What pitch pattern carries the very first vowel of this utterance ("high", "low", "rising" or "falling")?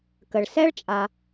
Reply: low